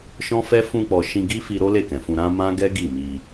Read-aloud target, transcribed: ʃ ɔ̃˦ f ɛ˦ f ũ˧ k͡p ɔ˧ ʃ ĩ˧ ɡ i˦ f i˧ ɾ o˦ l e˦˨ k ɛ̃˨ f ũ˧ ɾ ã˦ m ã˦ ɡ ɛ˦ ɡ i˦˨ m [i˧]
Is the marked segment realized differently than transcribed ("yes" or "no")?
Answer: no